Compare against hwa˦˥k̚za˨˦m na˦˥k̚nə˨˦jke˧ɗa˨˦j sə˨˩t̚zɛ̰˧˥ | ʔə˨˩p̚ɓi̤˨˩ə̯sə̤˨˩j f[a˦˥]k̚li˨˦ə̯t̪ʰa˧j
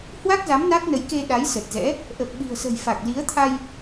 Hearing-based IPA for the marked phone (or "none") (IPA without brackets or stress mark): a˨˩